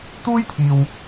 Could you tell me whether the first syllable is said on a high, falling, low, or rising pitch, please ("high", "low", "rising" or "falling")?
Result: high